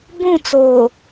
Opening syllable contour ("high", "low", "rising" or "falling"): falling